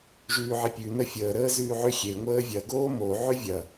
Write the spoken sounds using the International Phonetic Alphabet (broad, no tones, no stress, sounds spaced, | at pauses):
ʒ ʉː ʕ i pʲ ʉ n ə fʲ əː ɾ əː z ʉː ʕ ʏ xʲ e ŋʷ əː vʲ ɐ ɡ oː m o ʕ ʏ vʲ ɐ